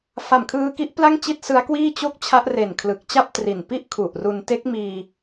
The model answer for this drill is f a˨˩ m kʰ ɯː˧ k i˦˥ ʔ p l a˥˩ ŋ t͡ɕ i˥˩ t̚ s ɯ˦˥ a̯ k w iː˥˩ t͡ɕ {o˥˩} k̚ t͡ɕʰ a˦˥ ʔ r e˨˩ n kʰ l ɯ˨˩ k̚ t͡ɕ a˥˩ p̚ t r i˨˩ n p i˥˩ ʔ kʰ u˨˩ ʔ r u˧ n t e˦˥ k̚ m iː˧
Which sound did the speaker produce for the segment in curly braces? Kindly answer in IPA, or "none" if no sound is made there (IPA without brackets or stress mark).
o˦˥